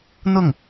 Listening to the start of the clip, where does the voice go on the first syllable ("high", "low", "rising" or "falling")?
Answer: falling